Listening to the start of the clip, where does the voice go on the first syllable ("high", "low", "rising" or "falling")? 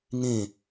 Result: falling